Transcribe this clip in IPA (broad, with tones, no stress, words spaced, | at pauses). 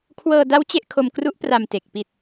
kʰwɤː˧da˦˥w t͡ɕe˥˩ʔ kʰo˧mkru˦˥ʔ pra˨˩m te˨˩k̚ pi˨˩t̚